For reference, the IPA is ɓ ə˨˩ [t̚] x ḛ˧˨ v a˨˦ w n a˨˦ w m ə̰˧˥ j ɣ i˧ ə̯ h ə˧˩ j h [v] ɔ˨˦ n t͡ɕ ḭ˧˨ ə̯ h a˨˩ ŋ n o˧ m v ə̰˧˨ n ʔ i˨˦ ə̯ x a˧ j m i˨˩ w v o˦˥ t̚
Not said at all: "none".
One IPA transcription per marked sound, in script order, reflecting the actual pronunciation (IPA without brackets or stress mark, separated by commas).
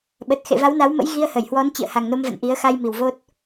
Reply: t̚, w